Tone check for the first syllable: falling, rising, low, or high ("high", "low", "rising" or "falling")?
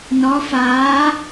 rising